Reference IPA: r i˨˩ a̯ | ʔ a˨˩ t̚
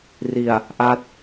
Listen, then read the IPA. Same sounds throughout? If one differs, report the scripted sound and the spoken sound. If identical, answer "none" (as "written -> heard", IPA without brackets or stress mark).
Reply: a˨˩ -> a˦˥